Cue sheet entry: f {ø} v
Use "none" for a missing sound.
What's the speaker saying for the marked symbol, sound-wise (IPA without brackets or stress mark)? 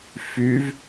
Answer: y